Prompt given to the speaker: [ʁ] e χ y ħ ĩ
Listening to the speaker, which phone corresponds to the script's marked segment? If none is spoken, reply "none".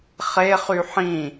χ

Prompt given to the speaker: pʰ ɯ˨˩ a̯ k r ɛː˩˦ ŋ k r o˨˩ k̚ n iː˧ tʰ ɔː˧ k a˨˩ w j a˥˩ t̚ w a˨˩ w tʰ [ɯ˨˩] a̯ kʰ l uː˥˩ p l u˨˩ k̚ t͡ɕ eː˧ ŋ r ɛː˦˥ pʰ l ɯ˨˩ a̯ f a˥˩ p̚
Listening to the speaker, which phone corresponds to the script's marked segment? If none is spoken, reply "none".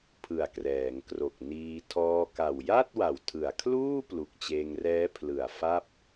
ɯ˨˩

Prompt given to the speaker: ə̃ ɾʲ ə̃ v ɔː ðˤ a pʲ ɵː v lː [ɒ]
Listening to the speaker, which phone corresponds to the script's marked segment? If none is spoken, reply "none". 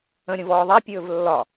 ɒ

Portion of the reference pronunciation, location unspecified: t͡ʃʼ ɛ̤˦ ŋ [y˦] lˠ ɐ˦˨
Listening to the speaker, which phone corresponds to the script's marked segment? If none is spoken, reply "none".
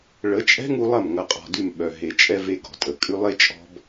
u˦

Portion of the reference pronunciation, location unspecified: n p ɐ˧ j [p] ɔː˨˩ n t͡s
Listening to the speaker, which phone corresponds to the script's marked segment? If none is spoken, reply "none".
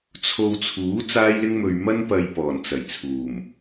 p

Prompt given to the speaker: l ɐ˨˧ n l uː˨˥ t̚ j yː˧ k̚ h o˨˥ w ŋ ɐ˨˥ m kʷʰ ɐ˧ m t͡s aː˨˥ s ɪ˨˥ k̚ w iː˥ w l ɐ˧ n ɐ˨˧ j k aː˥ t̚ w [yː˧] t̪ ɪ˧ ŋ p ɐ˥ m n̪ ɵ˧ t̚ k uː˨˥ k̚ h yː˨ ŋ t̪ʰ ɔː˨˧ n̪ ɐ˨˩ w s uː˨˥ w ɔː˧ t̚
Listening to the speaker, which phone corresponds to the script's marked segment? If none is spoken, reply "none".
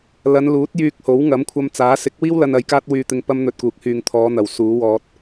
yː˧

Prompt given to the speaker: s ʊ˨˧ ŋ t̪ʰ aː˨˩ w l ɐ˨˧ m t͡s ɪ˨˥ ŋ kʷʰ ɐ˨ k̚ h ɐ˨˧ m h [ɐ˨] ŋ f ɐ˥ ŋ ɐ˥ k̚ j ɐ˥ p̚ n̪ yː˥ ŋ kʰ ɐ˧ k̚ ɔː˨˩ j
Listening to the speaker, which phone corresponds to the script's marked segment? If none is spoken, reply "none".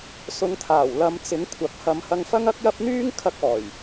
ɐ˧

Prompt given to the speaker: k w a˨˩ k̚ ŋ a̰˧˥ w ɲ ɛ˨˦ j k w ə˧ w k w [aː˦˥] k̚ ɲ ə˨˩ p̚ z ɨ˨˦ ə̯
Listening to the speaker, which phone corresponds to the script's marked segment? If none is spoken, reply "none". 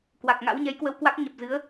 a˦˥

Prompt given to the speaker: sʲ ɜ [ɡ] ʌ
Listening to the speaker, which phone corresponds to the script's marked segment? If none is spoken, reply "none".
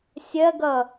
ɡ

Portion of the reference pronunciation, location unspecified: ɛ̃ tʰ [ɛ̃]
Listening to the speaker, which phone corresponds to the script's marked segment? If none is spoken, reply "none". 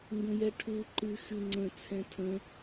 ə̃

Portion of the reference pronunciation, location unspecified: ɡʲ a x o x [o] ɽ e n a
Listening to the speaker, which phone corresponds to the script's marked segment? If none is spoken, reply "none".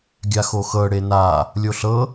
ɤ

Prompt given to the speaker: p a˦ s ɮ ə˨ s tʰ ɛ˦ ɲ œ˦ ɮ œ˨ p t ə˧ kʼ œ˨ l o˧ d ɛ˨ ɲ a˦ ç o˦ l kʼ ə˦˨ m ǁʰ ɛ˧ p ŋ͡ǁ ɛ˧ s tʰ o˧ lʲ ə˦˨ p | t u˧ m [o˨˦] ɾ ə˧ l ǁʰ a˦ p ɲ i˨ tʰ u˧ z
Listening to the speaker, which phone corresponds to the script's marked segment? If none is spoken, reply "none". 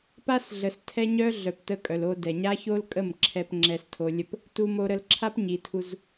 o˧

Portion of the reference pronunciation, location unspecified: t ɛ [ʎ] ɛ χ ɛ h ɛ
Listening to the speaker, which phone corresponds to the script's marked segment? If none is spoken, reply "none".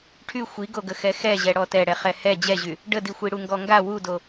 ɽ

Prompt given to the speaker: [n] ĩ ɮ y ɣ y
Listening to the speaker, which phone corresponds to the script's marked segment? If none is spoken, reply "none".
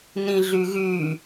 n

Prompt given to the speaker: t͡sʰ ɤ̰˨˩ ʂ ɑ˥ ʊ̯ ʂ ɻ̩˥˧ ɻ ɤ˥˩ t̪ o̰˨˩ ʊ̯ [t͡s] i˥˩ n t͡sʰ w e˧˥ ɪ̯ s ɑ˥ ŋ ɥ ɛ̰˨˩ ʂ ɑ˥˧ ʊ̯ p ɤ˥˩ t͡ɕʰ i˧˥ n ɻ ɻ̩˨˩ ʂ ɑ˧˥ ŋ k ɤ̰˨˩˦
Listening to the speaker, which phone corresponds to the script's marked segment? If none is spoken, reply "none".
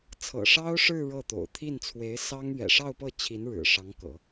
t̪ʰ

